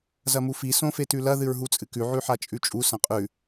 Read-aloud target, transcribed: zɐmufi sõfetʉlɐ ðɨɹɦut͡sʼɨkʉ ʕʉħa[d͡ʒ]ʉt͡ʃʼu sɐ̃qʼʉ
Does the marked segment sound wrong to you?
yes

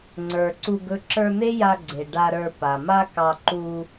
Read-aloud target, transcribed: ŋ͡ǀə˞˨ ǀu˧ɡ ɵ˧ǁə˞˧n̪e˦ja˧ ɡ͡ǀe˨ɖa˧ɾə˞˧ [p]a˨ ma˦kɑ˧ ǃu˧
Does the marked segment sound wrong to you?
no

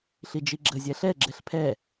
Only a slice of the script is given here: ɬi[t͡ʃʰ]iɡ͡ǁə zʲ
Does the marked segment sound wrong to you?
yes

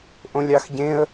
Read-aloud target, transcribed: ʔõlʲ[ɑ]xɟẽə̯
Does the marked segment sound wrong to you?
no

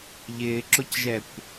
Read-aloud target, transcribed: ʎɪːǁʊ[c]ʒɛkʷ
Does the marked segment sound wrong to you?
no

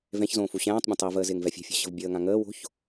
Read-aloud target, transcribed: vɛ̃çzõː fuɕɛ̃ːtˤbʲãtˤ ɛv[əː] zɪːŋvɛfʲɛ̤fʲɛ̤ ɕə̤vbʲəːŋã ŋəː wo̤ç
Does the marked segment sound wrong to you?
no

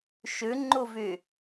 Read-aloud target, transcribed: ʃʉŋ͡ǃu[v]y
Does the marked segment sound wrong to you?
no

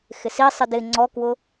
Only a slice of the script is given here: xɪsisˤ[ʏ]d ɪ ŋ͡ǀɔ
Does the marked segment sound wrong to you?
yes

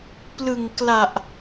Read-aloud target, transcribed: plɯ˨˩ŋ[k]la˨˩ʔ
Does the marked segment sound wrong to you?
no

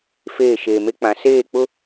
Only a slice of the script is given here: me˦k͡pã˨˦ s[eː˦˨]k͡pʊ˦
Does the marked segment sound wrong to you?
no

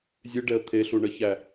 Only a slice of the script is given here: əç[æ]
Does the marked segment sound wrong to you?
no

